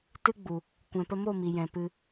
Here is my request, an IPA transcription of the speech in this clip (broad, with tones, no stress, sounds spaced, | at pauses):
t ɨ˦ ɡ͡b u˨ | kʷ ɛ̃˨ p ə˧ m o˦˨ m i˨ j ɛ̃˨ p ɨ˧